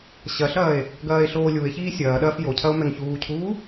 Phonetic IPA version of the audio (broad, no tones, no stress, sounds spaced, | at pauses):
ɕ ɐ ɬ ɐː e̯ | ɡ ɐː e̯ ɬ oː lʲ u e̯ ç iː sʲ ɐː ɗ ɐː f j o cʰ ɐ o̯ m ɛ ŋ ç uː cʰ uː